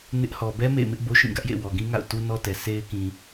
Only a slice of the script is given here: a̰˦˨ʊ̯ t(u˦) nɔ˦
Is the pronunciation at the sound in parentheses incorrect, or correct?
correct